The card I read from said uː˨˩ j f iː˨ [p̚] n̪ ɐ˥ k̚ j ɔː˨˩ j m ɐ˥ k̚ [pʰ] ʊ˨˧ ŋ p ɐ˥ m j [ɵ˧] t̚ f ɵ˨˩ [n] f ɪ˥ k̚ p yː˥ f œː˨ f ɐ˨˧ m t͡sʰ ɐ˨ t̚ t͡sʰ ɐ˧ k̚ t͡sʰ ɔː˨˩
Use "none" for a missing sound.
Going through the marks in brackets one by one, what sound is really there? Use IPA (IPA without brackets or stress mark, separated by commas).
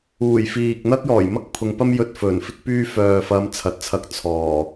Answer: k̚, pʰ, ɵ˧, n